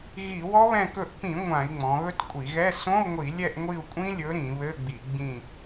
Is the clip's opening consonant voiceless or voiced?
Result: voiced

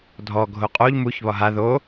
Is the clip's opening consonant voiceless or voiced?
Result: voiced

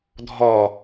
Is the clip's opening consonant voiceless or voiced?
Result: voiced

